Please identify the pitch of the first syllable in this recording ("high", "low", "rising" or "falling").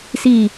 falling